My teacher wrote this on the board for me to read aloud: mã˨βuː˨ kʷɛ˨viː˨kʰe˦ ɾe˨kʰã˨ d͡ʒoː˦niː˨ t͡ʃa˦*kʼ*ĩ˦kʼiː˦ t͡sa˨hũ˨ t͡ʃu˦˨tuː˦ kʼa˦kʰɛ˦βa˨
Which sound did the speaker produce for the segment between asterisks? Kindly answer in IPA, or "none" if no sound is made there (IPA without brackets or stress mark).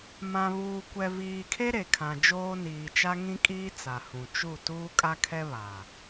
ŋ